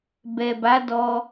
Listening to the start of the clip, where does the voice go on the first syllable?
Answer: low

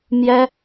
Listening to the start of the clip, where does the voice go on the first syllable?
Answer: high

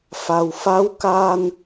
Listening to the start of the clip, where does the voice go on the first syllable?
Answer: low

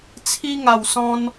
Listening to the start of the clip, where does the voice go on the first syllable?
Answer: high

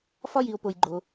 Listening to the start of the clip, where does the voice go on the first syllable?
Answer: high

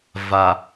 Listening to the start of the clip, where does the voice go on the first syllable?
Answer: low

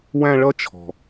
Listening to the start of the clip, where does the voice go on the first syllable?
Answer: high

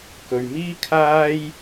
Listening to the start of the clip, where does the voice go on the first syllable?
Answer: low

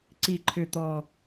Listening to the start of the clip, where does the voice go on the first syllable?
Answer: low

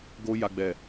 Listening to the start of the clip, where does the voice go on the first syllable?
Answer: high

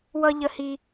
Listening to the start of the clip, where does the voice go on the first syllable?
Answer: high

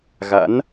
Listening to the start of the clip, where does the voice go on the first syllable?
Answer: rising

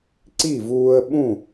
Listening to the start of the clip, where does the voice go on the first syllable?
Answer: falling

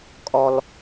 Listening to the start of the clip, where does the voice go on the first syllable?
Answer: high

